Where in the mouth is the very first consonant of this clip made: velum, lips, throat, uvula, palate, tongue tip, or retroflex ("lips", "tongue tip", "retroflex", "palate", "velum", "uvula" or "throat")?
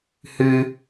throat